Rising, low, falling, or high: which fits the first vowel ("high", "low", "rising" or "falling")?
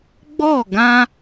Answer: falling